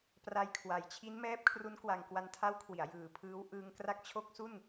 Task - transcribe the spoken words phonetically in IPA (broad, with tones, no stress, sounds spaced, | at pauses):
p r a˧ j kʰ w a˨˩ j t͡ɕʰ i˦˥ n m ɛː˦˥ p̚ kʰ r u˦˥ n k w a˧ ŋ k w a˧ n tʰ a˦˥ w kʰ w i˩˦ a̯ j ɯː˨˩ pʰ ɯː˦˥ w ʔ ɯː˧ ŋ k r a˦˥ k̚ t͡ɕʰ o˦˥ k̚ s u˥˩ n